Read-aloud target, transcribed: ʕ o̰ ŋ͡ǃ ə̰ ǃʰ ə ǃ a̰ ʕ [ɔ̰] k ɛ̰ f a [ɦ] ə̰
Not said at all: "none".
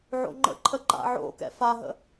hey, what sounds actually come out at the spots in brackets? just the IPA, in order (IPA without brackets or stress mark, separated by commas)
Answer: o̰, ɦ